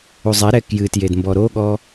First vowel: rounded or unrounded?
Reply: rounded